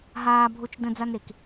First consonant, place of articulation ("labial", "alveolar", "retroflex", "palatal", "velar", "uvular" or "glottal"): glottal